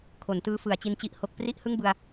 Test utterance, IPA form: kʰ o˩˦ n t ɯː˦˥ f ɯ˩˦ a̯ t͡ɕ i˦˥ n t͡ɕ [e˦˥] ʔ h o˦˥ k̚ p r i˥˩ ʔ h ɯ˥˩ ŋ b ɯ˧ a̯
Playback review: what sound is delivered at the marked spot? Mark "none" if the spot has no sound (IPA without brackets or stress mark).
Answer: i˦˥